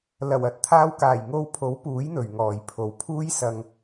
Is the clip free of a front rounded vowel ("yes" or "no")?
yes